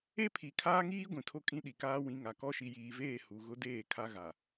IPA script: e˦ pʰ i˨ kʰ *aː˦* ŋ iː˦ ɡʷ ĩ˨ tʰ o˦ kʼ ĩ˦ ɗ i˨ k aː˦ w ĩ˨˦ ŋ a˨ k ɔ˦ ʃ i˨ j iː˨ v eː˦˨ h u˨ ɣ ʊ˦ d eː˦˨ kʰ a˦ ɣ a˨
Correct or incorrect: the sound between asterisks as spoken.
correct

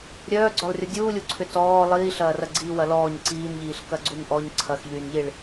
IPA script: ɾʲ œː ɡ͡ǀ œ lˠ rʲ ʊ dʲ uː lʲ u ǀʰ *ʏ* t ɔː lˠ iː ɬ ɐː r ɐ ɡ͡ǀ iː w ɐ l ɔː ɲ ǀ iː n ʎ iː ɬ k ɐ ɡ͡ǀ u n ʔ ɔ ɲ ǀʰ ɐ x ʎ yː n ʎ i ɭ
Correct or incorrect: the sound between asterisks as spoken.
correct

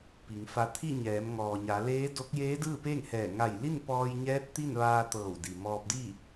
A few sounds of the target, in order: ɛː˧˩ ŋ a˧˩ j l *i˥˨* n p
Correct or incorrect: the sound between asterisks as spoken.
correct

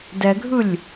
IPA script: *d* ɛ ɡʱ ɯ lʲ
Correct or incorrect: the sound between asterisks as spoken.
correct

